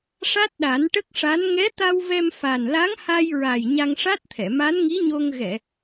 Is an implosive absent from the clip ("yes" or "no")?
no